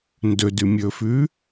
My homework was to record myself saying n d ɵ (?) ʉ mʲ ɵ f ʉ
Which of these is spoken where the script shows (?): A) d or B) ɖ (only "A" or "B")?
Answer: A